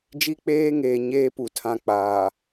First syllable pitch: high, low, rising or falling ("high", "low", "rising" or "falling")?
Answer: high